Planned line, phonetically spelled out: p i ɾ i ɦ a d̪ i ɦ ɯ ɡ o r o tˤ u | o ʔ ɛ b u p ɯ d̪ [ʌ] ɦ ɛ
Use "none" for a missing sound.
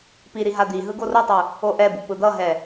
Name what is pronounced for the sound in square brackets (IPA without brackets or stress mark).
ʌ